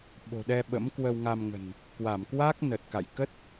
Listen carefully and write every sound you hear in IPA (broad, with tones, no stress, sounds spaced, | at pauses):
ɓ o̤˨˩ ɗ ɛ˧ ɓ ə̰˧˥ m k w ə˧ w ŋ a˧ m ŋ ə̤˨˩ n | k w a˧˩ m k w a˦˥ k̚ n ə˨˩ t̚ k a̰˧˨ j k ə˦˥ t̚